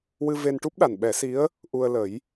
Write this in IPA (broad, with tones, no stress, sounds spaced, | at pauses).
w ɨ˧ v e˧ n ʈ u˦˥ p̚ ɗ a˨˩ n ɓ ɛ˨˩˦ s i˧˥ ə̯ | ʔ u˧ ə̯ l ə˨˩˦ j